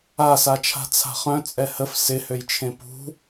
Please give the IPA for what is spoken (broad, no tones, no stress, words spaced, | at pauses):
asat͡ʃʰa̤ t͡sʰa̤χœ̃ t͡sʼɛhəf sɪhøjt͡ʃʰẽ pṳ